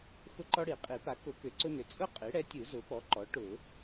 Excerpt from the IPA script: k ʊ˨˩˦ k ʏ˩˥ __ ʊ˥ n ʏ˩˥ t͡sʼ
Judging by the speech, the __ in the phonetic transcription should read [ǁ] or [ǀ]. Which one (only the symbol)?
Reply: ǀ